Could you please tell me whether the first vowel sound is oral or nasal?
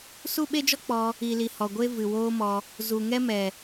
oral